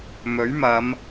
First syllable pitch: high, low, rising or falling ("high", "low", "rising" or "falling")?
rising